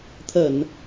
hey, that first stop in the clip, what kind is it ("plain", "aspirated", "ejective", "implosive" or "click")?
aspirated